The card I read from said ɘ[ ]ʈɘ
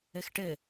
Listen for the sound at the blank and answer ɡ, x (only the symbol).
x